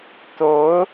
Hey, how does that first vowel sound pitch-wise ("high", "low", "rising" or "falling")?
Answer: rising